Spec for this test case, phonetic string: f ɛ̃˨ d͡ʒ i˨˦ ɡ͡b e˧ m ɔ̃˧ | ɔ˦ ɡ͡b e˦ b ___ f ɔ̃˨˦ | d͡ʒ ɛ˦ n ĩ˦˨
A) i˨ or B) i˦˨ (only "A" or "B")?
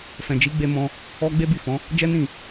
B